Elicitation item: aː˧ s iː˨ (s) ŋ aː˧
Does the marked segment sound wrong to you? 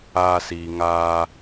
yes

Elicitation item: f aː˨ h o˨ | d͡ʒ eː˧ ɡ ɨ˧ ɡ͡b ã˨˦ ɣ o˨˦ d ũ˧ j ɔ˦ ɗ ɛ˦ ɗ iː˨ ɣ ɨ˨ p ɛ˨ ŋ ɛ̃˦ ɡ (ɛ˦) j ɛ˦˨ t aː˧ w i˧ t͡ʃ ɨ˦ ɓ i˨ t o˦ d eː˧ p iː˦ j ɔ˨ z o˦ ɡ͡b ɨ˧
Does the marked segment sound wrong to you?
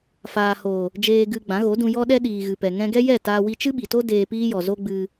no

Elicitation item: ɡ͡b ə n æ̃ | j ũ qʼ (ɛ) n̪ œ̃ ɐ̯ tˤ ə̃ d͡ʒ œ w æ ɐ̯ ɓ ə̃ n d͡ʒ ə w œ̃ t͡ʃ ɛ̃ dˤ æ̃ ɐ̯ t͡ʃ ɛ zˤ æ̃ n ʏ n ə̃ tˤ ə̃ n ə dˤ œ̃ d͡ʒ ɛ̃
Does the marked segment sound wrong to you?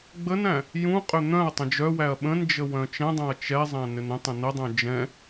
yes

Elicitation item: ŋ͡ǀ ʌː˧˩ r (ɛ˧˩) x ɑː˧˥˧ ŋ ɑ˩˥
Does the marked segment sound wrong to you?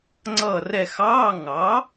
no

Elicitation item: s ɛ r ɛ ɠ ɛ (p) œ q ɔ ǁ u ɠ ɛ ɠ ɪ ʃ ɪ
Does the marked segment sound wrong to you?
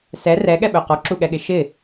yes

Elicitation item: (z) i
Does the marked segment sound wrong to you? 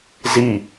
no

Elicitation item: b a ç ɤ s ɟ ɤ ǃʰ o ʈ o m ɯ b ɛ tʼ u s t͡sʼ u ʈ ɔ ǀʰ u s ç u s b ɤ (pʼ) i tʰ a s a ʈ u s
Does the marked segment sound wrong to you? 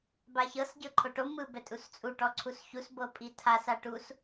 no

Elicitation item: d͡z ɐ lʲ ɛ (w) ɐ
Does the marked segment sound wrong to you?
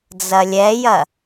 yes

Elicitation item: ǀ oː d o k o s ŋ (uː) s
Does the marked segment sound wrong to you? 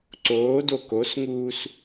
no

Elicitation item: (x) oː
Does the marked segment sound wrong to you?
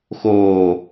no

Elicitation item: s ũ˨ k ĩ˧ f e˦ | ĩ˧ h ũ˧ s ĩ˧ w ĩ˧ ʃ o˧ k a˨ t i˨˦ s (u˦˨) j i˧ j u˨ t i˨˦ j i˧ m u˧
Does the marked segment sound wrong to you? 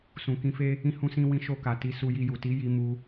yes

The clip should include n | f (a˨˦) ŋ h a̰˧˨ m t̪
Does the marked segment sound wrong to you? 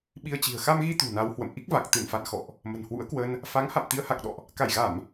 no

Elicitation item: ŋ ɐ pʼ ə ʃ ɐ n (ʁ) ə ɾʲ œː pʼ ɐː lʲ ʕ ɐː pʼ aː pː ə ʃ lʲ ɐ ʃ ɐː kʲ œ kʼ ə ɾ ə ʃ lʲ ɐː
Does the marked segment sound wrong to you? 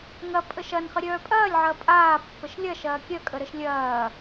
yes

